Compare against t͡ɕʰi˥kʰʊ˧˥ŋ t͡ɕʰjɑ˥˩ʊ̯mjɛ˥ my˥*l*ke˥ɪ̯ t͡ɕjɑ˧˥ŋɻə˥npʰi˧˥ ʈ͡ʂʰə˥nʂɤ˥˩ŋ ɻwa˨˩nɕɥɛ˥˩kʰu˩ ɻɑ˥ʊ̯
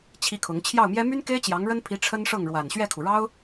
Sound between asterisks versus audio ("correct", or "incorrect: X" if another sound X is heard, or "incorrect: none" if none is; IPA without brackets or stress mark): incorrect: n